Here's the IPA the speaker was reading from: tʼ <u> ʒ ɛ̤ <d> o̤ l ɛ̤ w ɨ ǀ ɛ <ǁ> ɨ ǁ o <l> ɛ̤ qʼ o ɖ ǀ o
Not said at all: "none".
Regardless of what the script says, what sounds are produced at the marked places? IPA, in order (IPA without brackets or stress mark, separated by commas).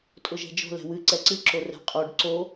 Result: ʊ, d͡ʒ, ǀ, r